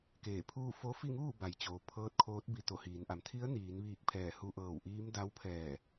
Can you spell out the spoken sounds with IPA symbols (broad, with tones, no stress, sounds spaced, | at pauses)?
k eː˧˩ pʰ uː˥˨ f o˧˥ f i˥˨ ŋ uː˥˨ b a˩ j t͡ɕ oː˩ pʰ ɤː˧˥ t̚ kʰ oː˧˥ t̚ b i˧ t̪ o˧˩ h iː˩˧ n ʔ a˩ m t̪ʰ i˧˥ ə̯ n iː˩˧ n ʋ iː˧˩ k̚ pʰ ɛː˧˩ h u˧ ʔ ɤː˧˩ w ʔ iː˧˥ m d a˧˥ w pʰ ɛː˧˩